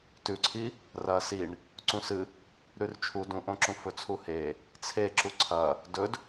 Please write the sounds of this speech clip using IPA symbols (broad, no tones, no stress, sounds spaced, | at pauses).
t ʉ ǀʰ i | r ɐ s i ɳ | ǀ ũ s ɨ | ɾ ʉ r t͡ʃʰ u d ũ ʔ õ ǁ ũ f ɵ t͡sʰ u h e | t͡sʰ e ǁ u ǀʰ ɐ | d ɵ d